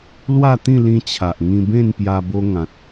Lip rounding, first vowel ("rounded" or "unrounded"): unrounded